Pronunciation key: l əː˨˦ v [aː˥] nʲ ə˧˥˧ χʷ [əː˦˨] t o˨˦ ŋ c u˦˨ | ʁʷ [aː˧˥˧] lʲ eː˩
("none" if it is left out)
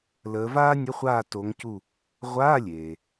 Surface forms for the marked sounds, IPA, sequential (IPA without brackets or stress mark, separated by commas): aː˥, aː˦˨, aː˧˥˧